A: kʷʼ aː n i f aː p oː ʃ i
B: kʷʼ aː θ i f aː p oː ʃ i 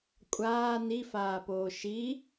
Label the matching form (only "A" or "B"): A